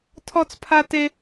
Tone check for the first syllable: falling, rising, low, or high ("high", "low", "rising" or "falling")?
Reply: high